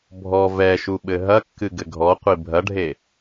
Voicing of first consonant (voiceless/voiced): voiced